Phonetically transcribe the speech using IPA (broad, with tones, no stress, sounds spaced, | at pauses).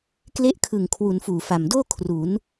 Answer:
k l e˦˥ ʔ kʰ ɯ˨˩ ŋ kʰ w u˩˦ n f uː˨˩ f a˨˩ m d oː˥˩ kʰ r u˩˦ n